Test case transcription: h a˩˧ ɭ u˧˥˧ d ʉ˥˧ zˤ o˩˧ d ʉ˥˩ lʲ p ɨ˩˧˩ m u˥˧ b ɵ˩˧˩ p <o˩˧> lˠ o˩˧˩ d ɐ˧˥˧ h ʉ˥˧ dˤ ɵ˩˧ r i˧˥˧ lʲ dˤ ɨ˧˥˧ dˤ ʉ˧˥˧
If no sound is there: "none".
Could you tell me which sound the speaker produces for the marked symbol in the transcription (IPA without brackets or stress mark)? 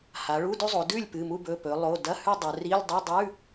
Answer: ɵ˩˧